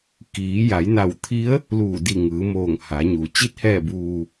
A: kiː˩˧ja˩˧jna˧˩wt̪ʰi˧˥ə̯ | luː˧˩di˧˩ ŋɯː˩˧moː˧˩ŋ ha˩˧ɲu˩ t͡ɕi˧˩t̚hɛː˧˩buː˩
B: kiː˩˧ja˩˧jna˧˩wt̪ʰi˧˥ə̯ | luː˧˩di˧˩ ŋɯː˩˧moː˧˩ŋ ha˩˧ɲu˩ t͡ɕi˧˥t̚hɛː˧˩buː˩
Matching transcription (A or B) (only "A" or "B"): B